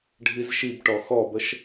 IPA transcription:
ɖʱ i z ʃ i b ʈ ɔ x ɔ b ə ʃ

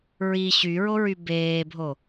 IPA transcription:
ɹ i ɕ y ɹ o ɹ y b eː bʱ o

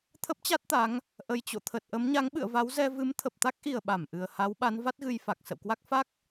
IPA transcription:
t̪ʰ ə˦˥ p̚ t͡ɕ a˦˥ t̚ t̪ a˨˦ ŋ | ʔ ə˨˩ j t͡ɕ o̰˧˨ t̪ʰ ə˨˩ t̚ ʔ ə˨˦ m ɲ a˨˦ ŋ ɓ ɨ̰˧˨ ə̯ v a˨˦ w z ɛ˧ v ɨ˨˦ m t̪ʰ ə˨˩ p̚ t̪ a˦˥ k̚ ʔ i˨˩ ə̯ ɓ a˧˩ m ʔ ɨ˨˩ ə̯ h a˨˦ w ɓ a˨˦ n v a˦˥ t̚ ɣ ɨ˧ j f a˨˩ k̚ s ə̰˧˨ w k w a˦˥ k̚ f a˦˥ k̚

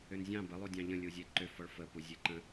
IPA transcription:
ʏ n zʲ ɑ̃ b ə lˠ u dʲ ɑ̃ ʎ ə̃ lʲ u zʲ e ǃ ʏ f ɔ ɭ f ə p u zʲ e ǃ ə̃

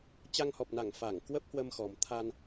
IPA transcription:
t͡ɕ a˧ ŋ h ɔ˨˩ p̚ n a˧˩ ŋ f a˧˩ ŋ k w ə˦˥ p̚ h w ə˧ m x ɔ˨˩ m t̪ʰ a˧ n

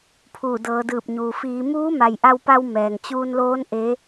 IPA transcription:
pʰ uː˧˩ d ɤː˩˧ d ɯː˧˩ p̚ ɲ uː˩ f iː˩˧ m uː˧˥ m a˩ j ʔ a˧ w p a˧ w m ɛː˩ ŋ t͡ɕ uː˧ n l oː˧˥ n ʔ e˧˥

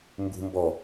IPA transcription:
m b ṳ m b ɔ

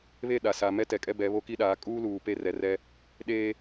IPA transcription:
β e˦˨ ɗ a˨ s a˨ m ɛ˦ t ɛ˨ kʼ ɛ˦ b ɛ˨˦ β o˦ k i˦ ɗ aː˨˦ kʼ uː˦ l uː˨ p e˦˨ r ɛ˨ r ɛ˦ | ɗ e˦

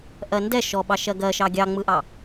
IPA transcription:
ʔ ɜ n d ɛ ʃ ɔ ɓ ɑ ʃ ɜ ɡ ɜ ʃ ɑ ɡʲ ɑ ŋ͡m ɯ ʔ ɑ

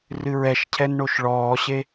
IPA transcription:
r ɨ ɹ ɛ ʃ cʰ ɛ n ɳ o ʃ ɭ ɔː ɕ e

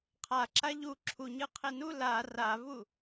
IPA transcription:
qʰ a ǁ a ʎ u ǁʰ u ɲ ɯ qʰ e n u l a r a v u

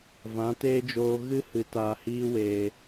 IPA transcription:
v ã˨˦ t eː˦ d͡ʒ oː˧ ɣ ɨ˦ h ɨ˨ t aː˨ h iː˧ w eː˨

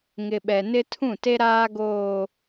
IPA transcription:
ŋ ɪ˨ ɓ ɛ˨ n ɪ˦ tʰ ũ˦˨ t e˦ ɾ aː˦ ɡ oː˨

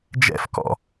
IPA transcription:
d͡ʒ ɛ̰ f k ɔ̰

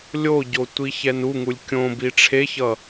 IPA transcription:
lʲ o ɟ o tʷ i ç ɛ n u ŋ u lʲ kʲ õ b i ʈ͡ʂʰ e ç ʌ

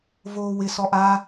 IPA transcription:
v oː w ɪ s ɔ ʔ a

